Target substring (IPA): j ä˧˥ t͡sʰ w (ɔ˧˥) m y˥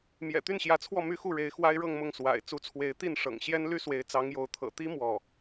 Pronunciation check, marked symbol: incorrect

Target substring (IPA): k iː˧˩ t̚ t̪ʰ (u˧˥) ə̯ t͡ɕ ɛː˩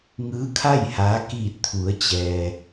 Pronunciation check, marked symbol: incorrect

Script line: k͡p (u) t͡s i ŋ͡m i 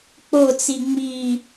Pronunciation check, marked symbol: incorrect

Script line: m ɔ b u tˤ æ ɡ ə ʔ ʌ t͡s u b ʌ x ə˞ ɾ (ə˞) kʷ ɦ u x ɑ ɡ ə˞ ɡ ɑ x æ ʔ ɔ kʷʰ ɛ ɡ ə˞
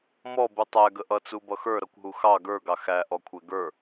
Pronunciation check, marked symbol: incorrect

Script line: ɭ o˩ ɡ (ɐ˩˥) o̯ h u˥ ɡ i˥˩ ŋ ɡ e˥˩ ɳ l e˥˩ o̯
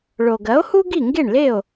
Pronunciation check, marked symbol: correct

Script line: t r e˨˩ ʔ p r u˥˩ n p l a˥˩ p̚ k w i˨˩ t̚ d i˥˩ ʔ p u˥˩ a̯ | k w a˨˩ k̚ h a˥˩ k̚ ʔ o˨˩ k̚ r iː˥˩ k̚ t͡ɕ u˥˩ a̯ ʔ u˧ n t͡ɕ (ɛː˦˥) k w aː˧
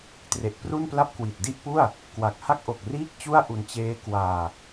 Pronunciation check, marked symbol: incorrect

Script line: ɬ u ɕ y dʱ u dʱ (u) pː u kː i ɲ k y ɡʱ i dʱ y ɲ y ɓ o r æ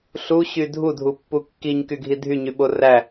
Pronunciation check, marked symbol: correct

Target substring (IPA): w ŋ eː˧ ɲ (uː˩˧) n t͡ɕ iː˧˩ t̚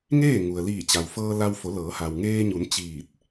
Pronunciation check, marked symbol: incorrect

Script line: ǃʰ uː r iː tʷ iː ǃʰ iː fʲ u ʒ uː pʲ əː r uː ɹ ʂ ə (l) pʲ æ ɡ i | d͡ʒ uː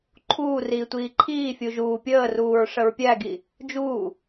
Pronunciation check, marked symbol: incorrect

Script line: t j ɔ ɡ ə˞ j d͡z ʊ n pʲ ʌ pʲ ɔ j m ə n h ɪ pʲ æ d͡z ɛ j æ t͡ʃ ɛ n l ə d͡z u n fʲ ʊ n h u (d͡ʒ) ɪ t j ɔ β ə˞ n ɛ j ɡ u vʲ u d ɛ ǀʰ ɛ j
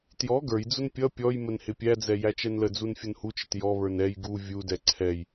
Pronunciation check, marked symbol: incorrect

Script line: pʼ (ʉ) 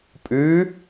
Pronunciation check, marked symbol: correct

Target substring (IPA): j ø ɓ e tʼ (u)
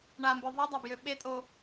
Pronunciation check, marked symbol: incorrect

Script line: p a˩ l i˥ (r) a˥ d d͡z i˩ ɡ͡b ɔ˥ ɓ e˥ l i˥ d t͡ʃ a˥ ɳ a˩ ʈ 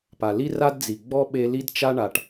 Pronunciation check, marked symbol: correct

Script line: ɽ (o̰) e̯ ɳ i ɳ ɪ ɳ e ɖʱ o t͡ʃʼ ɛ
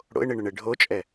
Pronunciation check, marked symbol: correct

